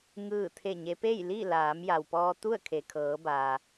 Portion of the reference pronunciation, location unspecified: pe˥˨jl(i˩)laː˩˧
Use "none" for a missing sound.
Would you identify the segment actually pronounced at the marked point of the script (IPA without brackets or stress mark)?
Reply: i˥˨